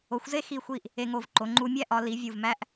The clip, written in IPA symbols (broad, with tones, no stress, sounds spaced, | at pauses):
o˩˧ xʷ z e˥˧ x i˧˩ xʷ i˧˩ ʔ | e˧ ŋ o˧˩ v ǃ o˩˧ ŋ͡ǃ u˧ mʲ æ˥ ʔ ɒ˩˧ l i˩˧ vʲ u˧˩ v m æ˥ ʔ